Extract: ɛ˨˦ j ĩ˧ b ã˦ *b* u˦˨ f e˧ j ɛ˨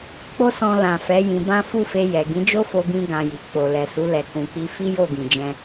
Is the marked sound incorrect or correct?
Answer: incorrect